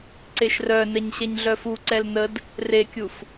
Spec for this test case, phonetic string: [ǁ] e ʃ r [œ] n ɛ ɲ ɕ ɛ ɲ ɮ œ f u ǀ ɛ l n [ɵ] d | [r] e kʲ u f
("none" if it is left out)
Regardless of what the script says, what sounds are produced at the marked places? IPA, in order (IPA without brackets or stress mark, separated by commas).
ǀ, œ, ə, r